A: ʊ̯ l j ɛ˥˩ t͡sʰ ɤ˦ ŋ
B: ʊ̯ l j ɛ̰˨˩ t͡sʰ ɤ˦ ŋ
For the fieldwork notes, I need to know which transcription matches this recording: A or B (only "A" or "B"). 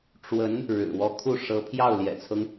B